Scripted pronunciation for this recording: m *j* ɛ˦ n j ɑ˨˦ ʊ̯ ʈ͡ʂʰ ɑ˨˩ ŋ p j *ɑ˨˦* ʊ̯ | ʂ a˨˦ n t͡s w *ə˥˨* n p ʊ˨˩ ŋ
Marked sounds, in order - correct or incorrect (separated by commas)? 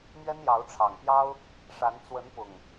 incorrect, incorrect, incorrect